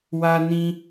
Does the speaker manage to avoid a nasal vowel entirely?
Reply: no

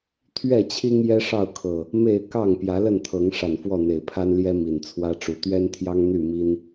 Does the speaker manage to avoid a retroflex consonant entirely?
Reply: no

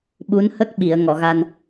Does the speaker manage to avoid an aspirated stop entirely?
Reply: yes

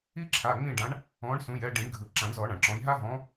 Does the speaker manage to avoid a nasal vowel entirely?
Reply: no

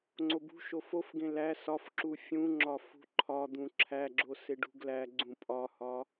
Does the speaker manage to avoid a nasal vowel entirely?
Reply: no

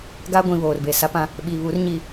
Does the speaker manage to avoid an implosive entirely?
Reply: no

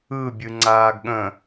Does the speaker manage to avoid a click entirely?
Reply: no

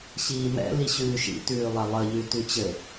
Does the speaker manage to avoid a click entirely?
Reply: yes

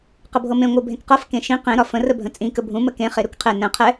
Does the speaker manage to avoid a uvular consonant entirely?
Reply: no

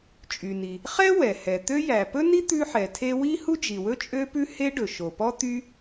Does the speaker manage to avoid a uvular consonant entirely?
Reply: no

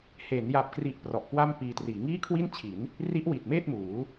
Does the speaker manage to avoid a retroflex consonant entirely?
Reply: yes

